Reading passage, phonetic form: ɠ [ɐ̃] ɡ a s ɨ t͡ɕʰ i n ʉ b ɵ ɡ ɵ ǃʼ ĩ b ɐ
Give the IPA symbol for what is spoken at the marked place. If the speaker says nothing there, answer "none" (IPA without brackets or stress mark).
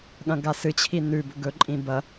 ɐ̃